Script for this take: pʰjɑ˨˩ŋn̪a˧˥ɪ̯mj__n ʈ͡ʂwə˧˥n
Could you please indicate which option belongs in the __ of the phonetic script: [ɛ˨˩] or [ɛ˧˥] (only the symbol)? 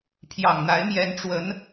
ɛ˧˥